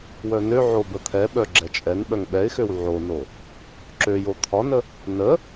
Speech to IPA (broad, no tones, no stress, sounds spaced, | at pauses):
w œ n ø ʕ o b ə t̪ʰ ɛ ɓ œ ɡ͡ǁ ɛ t͡ʃʼ ɛ n ɓ œ ŋ ɓ ɛ ɪ̯ x ø w ʕ o n o | ǁ ø j o t̪ʰ ɒ n ə | n ə